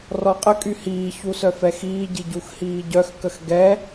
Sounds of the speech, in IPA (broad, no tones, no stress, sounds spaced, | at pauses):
r ɔ qʼ ə kʼ y h iː ç u s œ f ɛ x iː ɟ i ɟ u x h iː ɟ œ x k ə x ɡ ɛ